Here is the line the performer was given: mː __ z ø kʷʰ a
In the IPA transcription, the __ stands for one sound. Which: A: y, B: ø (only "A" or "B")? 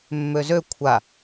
B